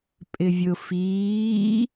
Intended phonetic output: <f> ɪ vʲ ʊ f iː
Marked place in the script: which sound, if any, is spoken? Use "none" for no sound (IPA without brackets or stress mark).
pʼ